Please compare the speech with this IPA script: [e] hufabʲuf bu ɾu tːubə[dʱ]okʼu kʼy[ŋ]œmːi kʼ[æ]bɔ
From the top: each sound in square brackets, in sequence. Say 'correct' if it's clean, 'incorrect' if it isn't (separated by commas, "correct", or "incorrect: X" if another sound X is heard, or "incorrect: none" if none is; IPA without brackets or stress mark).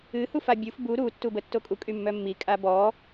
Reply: incorrect: ɨ, incorrect: tː, incorrect: mː, incorrect: a